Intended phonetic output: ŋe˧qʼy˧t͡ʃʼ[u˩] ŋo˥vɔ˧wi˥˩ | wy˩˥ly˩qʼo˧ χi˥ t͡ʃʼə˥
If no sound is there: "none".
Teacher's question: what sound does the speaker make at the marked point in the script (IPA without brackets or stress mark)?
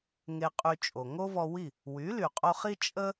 o˩